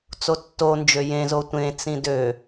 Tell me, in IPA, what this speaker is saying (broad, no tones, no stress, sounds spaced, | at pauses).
t͡s o tː o n d͡ʒ ø j ẽ z o tʷ ẽ t͡s ĩ d ø